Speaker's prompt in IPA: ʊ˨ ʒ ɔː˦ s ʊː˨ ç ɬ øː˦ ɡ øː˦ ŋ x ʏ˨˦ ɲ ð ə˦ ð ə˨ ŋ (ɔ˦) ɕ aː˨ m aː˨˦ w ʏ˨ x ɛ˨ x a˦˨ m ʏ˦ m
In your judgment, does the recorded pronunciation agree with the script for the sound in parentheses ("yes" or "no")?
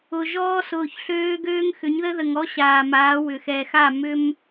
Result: yes